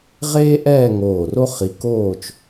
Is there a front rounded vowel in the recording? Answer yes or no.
no